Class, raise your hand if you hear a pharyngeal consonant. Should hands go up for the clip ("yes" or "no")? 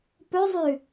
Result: no